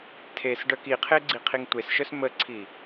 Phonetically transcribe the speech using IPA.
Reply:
tʰ e s ɖ œ k i qʰ e ɡ͡ǀ i qʰ i ŋ tʷ e s ʃ œ s m ə ǀʰ i

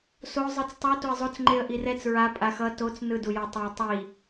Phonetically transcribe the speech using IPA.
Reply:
s o zˤ ɯ t͡s tˤ o t o ɪ̯ zˤ o t͡s ŋ͡ǃ e ə̯ ʔ i r ɛ t͡s ɹ a pʼ a x ʌ t o t͡s n ɯ d u j a tˤ o ɪ̯ tˤ i

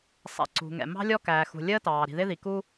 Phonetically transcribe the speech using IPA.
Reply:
sˤ ɛ̰˩ ǀ ṳ˩ ŋ ɛ̰˩ m ɑ̤˥ lʲ ɔ˥ k æː˩ x ṳ˩ lʲ əː˥ t ɑː˩ ɾ i̤˩ ð ɪ˥ ð i˩ k u˥

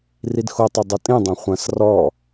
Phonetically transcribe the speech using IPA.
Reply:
r i d x o tˤ o dˤ ɐ tʼ ĩ dˤ õ χʷ ɐ̃ s r ɔ

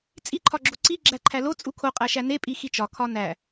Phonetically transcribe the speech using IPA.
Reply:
t͡sʼ i ǃʰ ɒ ɡ͡ǁ o ǀ i ɡ͡ǁ æ ǃʰ æ l o t͡sʼ u kʰ o qʼ æ ʃ æ n e pʼ i x i t͡ʃ ɒ kʰ ɒ n æ

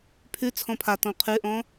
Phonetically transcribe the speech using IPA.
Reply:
pʰ ʉ t͡sʰ ɔ̃ pʰ a t ɔ̃ qʰ ʉ ʔ ɔ̃

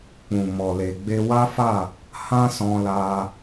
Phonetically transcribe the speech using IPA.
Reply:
k͡p ũ˨ m ɔ˨ l e˨ ɡ͡b e˧ w a˦ f a˦˨ | h ã˦ s ɔ̃˧ l a˧

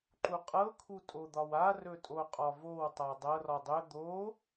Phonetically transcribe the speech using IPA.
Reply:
ǃ u qʼ ɤ kʰ u tʼ o d̪ ɒ w a r ɵ tʼ o qʼ ɒ v o w tˤ a dˤ ɤ r ɒ dˤ ɵ d̪ o

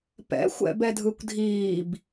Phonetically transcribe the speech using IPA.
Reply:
p ɛ̰ xʷ ɛ̰ b ɛ dʱ ɯ kʷ dʱ iː b

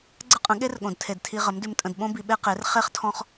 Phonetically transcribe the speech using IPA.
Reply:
ɡ͡ǀ ə˦ qʼ ə̃˨˦ ɠ e˦ r ɠ õ˨ d tʰ e˨ d tʰ i˧ ʁ ə˨˦ m d ʉ˧ m tʼ ə̃˧ d ɓ õ˦ b i˧ ɓ e˦ q e˨˦ r χ e˦ χ tʰ ɔ̃˦ χ

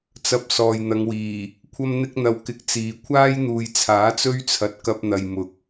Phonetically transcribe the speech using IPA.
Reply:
t͡s ɐ˨ p̚ s ɔː˨ j n̪ ɐ˨˧ ŋ w iː˨˩ | kʷʰ ɐ˥ m n̪ ɪ˥ k̚ n̪ ɐ˧ w k ɪ˧ k̚ t͡s iː˨ kʷʰ aː˥ j n̪ uː˨ j t͡sʰ aː˨˥ t͡s ɵ˥ ɥ t͡sʰ ɐ˨ t̚ k ɐ˧ p̚ n̪ ɐ˨ j m ʊ˨˥ k̚

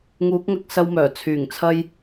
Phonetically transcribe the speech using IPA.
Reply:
ŋ uː˨˥ k̚ ŋ ɐ˧ k̚ s ɐ˧ w m œː˨˩ t͡sʰ yː˨˩ ŋ t͡sʰ ɐ˥ j

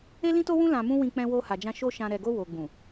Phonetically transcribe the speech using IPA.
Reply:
e˦ l ĩ˦ t o˦ w ũ˦ l ã˧ m ũ˦ w ĩ˧ k͡p ɛ̃˧ w o˧ h a˨ d͡ʒ ã˧ ʃ o˦ ʃ ã˧ ɾ ɛ˨ ɡ o˧ w o˨ ɡ͡b ũ˨

